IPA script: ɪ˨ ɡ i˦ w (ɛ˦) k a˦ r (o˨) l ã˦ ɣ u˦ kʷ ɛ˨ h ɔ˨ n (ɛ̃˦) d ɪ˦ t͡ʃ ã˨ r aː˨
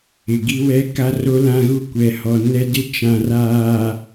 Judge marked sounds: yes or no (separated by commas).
yes, no, no